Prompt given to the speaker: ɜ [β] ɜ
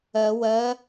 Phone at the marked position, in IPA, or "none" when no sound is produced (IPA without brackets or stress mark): w